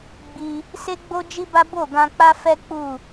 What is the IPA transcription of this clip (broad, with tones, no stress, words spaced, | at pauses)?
ɡ͡bi˧ | se˦ɡ͡bo˦d͡ʒi˦ba˦ bo˦˨ɡã˧k͡pa˦fɛ˦ k͡pu˦˨